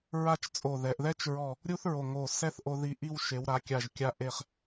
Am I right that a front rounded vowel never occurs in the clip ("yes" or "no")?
yes